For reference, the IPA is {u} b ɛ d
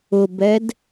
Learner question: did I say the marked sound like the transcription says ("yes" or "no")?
no